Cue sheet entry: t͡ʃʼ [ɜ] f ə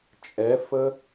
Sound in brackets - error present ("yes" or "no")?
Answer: yes